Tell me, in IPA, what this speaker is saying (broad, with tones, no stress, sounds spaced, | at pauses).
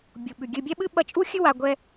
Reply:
bʲ u˨ ɓ ʉ˨ ɡʲ ɨ˦ bʲ ɛ˥ ɓ ɨ˥ ɓ ɐ˦ t͡ʃʼ u˥ xʲ ɨ˥ w a˦ ɡʷ ɛ˥